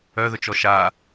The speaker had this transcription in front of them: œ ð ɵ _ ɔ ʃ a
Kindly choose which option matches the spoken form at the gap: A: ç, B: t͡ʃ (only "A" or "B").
B